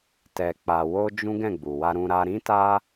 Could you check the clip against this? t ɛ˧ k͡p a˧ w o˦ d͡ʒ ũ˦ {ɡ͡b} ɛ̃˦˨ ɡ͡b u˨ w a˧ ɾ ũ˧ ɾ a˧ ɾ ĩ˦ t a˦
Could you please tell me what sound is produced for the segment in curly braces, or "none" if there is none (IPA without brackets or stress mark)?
ɡ